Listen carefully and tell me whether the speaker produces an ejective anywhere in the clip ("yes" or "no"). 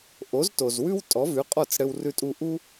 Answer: yes